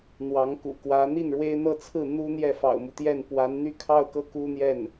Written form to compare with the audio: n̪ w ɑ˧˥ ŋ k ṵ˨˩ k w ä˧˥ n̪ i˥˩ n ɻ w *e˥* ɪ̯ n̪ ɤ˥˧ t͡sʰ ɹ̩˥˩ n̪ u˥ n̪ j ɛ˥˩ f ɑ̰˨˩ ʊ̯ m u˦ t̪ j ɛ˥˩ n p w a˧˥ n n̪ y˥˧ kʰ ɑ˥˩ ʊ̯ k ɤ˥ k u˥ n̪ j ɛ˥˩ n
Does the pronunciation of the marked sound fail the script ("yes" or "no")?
no